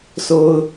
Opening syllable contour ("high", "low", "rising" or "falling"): low